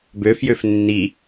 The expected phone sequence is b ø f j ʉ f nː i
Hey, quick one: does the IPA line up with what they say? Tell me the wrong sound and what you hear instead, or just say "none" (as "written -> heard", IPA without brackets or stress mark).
ʉ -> ø